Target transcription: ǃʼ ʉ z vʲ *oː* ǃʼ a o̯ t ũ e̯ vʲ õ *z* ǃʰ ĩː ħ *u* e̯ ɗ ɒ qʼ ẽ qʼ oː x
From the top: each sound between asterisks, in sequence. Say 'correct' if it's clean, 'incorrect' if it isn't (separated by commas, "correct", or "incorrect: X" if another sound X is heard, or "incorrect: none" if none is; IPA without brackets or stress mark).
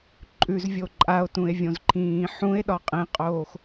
incorrect: o, correct, incorrect: ũ